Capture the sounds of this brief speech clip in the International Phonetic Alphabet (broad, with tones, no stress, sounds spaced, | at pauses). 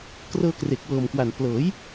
k r ɤː˧ k r e˨˩ k̚ w ɤː˨˩ m k w a˨˩ n p l ɤː˩˦ j